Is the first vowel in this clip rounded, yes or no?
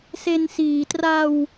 no